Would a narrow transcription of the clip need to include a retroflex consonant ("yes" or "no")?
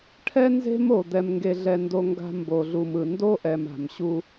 yes